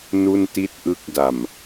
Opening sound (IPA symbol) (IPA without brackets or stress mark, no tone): n